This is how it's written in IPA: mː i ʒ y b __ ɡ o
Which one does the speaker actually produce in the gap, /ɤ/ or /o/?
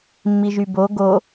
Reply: o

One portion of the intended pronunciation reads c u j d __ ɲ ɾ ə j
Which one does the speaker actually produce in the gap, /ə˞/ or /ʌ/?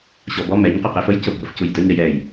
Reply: ə˞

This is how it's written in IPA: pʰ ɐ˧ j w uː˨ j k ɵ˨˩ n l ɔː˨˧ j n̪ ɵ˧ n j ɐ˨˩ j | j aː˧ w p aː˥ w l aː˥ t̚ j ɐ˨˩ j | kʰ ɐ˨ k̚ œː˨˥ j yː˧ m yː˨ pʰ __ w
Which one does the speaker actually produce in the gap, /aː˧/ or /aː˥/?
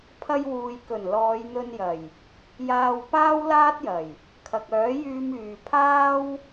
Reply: aː˥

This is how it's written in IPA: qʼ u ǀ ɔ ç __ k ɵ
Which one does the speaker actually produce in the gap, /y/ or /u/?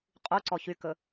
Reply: y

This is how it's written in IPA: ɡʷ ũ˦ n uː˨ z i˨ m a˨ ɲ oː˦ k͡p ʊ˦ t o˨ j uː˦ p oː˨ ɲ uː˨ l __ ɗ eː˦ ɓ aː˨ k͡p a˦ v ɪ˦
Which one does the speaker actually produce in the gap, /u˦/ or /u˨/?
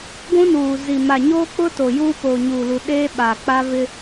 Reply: u˨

